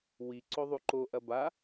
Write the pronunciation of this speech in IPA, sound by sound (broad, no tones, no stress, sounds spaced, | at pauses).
w i ǀ o ðˤ u ǃ o ʔ ɐ b a